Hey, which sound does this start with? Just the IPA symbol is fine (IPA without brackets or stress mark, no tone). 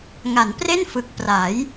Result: ŋ